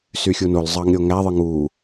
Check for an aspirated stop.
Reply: absent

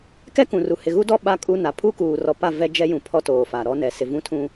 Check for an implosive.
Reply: present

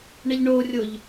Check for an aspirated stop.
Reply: absent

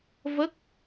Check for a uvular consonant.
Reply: absent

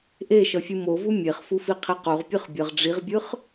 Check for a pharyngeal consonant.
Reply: absent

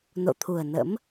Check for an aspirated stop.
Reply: present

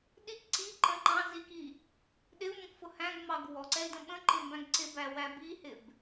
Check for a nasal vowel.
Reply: present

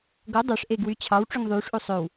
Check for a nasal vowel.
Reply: absent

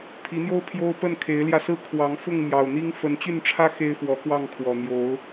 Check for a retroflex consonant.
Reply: present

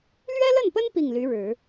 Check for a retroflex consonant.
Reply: present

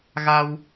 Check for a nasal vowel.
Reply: absent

